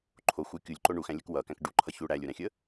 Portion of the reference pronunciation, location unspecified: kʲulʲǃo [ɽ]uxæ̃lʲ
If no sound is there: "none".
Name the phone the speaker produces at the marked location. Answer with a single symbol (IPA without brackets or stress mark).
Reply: ɳ